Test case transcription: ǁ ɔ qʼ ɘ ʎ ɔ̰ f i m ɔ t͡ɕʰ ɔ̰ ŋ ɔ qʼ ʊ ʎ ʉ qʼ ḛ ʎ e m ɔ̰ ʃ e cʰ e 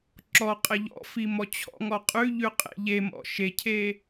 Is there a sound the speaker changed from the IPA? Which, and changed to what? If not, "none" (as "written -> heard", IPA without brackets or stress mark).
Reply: ʊ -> ʉ